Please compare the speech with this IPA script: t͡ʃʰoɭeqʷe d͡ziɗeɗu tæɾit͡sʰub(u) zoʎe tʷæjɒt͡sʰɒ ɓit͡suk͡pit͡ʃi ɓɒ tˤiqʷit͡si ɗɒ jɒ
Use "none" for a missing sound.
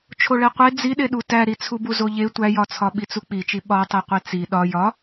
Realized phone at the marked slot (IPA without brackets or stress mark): u